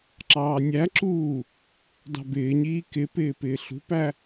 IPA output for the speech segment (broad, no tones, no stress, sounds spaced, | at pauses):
ǁ ɑː nʲ æ ǁ uː | d ɑ̤ b ɪː ɲ iː k ɪ p ɪː p ɪː ɬ ṳ p æ